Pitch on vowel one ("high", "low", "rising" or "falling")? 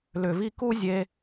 low